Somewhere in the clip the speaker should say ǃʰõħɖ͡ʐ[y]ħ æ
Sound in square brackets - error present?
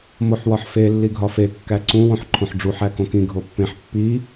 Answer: yes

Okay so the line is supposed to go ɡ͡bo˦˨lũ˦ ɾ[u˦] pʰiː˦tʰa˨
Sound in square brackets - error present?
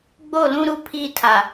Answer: no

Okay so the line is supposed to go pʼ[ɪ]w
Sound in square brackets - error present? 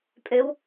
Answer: yes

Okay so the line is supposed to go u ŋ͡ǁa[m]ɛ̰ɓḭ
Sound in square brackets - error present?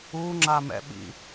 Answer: no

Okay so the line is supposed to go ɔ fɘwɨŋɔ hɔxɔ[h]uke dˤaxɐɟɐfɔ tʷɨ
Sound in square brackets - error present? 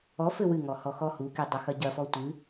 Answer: no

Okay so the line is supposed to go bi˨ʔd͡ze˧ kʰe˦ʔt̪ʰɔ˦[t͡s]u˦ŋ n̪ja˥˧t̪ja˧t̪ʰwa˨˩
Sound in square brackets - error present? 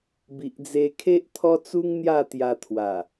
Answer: no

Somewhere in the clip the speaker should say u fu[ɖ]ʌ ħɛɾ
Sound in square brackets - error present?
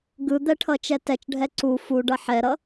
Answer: no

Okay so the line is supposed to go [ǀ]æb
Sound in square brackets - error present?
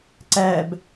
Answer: no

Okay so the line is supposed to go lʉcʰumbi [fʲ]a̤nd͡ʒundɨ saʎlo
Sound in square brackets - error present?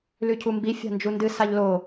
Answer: no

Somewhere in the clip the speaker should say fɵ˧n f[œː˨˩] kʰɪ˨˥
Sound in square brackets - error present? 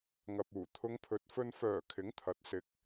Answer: no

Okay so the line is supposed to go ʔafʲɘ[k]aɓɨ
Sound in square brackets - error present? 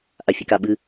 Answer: no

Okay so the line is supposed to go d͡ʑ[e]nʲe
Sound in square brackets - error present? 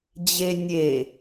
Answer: no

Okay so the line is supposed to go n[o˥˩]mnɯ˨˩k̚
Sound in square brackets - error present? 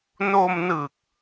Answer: yes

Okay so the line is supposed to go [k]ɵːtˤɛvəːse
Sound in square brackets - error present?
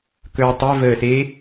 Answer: no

